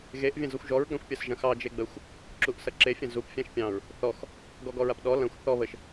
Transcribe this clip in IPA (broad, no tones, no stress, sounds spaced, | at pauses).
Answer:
ɣ e ʔ vʲ ɐ̃ z ɔ xʷ ʒ ɔ ɹ ɡ ã xʷ pʲ ɐ s ʒ ɐ̃ x ɑ d͡ʒ e ɡ͡b ə xʷ | ǁ u ʔ s ɐ ǁ e fʲ ɐ̃ z u p fʲ ã ʃ pʲ ɑ̃ ɹ | θ ɔ x | ɡ ɔ ɡ ɔ ɹ a p ɗ ɔ l ɐ̃ xʷ θ ɔ β ə ʃ